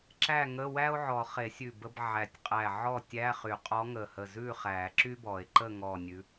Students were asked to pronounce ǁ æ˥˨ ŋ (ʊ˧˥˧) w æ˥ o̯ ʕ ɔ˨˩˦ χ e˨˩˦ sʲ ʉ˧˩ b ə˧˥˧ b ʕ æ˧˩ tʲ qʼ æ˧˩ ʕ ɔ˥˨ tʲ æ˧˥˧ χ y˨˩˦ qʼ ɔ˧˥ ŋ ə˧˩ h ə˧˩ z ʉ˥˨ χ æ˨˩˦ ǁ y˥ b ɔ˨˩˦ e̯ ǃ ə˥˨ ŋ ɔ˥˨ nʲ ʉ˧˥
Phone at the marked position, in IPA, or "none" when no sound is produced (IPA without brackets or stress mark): ə˧˥˧